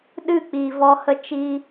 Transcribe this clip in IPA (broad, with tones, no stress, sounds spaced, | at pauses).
ɗ ɨ˦˨ k͡p iː˨ v ɔ˧ h ə˧ t͡ʃ iː˧